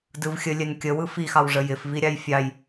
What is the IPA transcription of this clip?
dɯvxʲə lʲɛnkʲə wɯfixɑwʐə jɪfvi ɾʲɑjfʲɑj

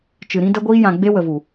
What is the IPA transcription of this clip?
t͡ʃɨ˨ɾĩ˧ də˧ɡʷiː˧jã˨ ɡ͡be˧wə˨vu˨

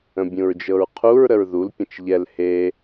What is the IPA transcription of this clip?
ə̃bʲũɹd͡ʒɤɹqʰuɹ ɾəɹðul pʲə̃t͡ʃʎɛl he

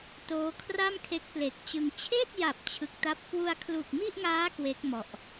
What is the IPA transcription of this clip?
toː˦˥kʰra˥˩mkʰe˦˥k̚ ple˨˩k̚t͡ɕɯ˧ŋ t͡ɕʰeː˥˩t̚ja˨˩p̚ t͡ɕʰɯ˦˥k̚ta˥˩p̚ kwu˧a̯kʰlu˨˩k̚mi˥˩ʔŋaː˦˥ kwe˦˥k̚mɔ˨˩ʔ

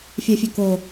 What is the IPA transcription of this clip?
fʲɛfʲøko

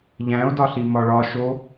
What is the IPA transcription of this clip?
ʎæ̃o̯dɒɬi mɒɭɒ ʃo

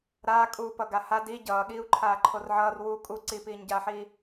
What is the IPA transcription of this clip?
ɾaː kʼuːpʌɡaha di ɟʌːɠiːu̯ǃʰaː ǃʰorʕʌːr wu kʼu ǀipiːɲɟaːħiː

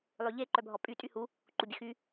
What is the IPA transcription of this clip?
lˠøʎe ǃœbʱɔpʼy tʼyhu | ǃubʲəxy

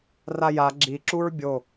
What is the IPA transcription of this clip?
raja ɡ͡ǁiǁuɹ bʲo

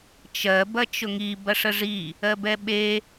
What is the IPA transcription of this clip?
t͡ʃɜ bɐt͡ʃʊŋi bɐʂəʐi | ɜbɛɓe

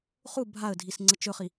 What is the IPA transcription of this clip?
χu bʱaə̯dʱis ŋ͡ǀət͡ʃɵχi

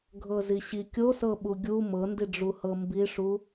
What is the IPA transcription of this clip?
ɡʱɤziɕi kʲosɤɓu ɡʲu mɤndiɖ͡ʐuhɤ mbiʂu

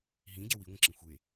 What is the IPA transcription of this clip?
ɦĩɟɛ wiŋʷə̃ǁĩ xʷe

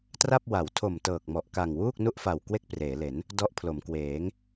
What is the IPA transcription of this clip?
tra˥˩p̚ wa˩˦wtʰo˨˩m tɤː˨˩k̚mɔ˨˩ʔka˨˩ŋ wuː˥˩k̚nu˥˩ʔfa˨˩w kwe˥˩k̚preː˩˦le˩˦n | dɔ˦˥ʔpʰlo˩˦mkweː˩˦ŋ

